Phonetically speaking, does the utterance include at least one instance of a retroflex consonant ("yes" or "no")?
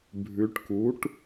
yes